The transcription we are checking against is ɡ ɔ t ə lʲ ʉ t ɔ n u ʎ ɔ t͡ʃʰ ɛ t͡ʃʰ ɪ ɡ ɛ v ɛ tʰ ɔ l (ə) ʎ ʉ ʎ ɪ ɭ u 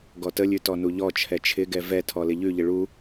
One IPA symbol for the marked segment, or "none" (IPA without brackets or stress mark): ɪ